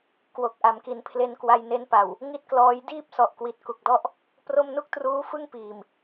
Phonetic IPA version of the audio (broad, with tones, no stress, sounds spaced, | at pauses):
k w o˨˩ k̚ ʔ a˩˦ m k i˩˦ n pʰ l e˧ n k w a˧ j n e˦˥ n p a˨˩ w | ŋ i˥˩ t̚ k l ɔː˦˥ j d iː˥˩ p̚ s ɔ˨˩ ʔ k w i˨˩ t̚ k u˨˩ k̚ d ɔ˥˩ ʔ | p r o˥˩ m n u˥˩ k̚ t r uː˦˥ f ɯ˥˩ ŋ p iː˨˩ m